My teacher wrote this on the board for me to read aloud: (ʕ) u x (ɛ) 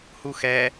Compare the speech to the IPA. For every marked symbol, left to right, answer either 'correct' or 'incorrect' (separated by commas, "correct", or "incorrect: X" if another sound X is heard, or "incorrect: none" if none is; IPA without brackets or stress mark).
incorrect: h, correct